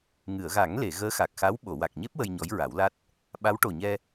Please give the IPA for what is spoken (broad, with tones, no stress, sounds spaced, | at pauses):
ŋ ɨ˨˩˨ ə̯ ɣ a˨˩˦ ŋ l e˨˩˨ ɣ əː˧˥ x a˨˩ k̚ x a˧˥ w ɓ o˨˩˨ w a˨˩ k̚ ɲ e˦˥ p̚ w ə˧ j ɲ ɔ˧˥ j ɹ a˨˩˦ w l a˦˥ t̚ | ɓ a˧˥ w ʈ o˨˩ ɲ ɛ˧